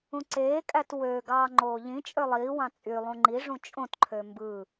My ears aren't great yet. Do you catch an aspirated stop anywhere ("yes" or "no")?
yes